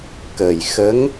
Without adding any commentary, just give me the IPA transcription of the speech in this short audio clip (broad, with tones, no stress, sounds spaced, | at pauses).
k əː˨˩ j x ə˧˥ ŋ